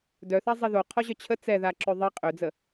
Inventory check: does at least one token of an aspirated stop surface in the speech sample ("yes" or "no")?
yes